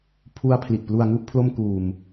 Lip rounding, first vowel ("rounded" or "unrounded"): rounded